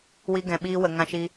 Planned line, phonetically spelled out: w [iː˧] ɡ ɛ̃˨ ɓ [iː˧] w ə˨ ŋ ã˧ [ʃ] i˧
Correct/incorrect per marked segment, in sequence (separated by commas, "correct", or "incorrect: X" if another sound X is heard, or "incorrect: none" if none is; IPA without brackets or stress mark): incorrect: i˧, correct, correct